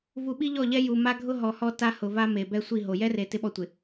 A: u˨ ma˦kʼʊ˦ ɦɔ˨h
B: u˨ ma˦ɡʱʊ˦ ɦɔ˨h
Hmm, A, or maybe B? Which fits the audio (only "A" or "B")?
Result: B